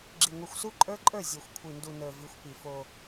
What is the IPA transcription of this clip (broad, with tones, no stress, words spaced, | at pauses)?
ɡ͡ǁi˨ŋʷi˨xʷsu˦ ǃʼə˞˦ǃʼə˞˦˨ zʲo˨xʷkʷʰi˨ndu˨ nə˞˨vi˨˦xʷpi˨fo˦